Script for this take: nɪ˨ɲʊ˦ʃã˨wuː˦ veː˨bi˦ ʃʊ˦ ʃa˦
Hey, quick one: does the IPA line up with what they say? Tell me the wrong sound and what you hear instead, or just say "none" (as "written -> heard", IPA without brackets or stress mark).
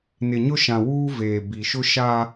i˦ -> i˨